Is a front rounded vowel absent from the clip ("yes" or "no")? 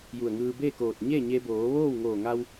yes